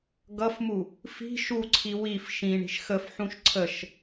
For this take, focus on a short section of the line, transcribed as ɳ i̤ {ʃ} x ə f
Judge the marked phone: correct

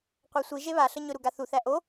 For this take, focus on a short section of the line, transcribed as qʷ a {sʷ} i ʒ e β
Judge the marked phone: correct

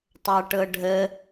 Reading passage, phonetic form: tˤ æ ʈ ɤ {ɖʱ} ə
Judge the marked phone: correct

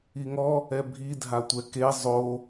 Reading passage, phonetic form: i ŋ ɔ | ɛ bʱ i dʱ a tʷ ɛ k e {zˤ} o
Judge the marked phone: correct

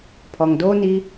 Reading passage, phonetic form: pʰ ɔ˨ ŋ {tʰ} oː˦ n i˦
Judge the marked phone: incorrect: d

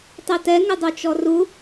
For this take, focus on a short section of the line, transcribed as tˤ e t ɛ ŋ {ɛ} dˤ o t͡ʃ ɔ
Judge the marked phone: incorrect: ɪ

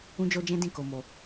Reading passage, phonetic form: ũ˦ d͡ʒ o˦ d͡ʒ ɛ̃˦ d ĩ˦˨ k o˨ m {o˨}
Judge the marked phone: correct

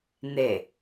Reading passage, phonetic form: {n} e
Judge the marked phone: correct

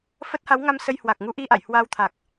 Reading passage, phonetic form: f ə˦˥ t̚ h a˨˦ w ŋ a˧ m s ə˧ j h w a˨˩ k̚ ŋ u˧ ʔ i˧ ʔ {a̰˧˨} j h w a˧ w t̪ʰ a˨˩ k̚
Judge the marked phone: correct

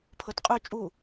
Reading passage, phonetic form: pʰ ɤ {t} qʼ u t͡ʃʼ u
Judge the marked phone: correct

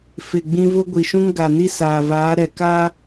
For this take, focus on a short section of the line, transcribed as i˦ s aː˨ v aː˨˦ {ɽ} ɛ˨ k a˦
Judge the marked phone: incorrect: ɾ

